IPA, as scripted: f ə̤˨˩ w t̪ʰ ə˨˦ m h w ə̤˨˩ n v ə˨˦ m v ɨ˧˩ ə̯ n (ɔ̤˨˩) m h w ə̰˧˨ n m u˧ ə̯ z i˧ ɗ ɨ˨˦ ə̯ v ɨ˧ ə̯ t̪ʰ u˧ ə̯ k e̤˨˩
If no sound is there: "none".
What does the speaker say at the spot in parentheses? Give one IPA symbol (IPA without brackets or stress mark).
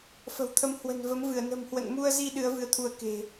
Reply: ə̤˨˩